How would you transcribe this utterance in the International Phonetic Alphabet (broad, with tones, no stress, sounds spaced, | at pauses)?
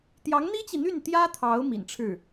t̪ j ɑ˧˥ ŋ n̪ i˥ t͡ɕ i˨ n̪ y˥˩ n t̪ j ä˥ t̪ʰ ɑ˧˥ ʊ̯ m ḭ˨˩ n ʈ͡ʂʰ ɻ̩˥˩